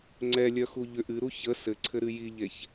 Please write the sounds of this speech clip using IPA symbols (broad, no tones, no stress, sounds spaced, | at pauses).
ŋ͡ǀ ɛ lʲ œ x u ʎ ʏ ʔ ɨ ɾ u ç ə s ɘ ǀʰ ɘ ɾ ɨ j i ʎ e ç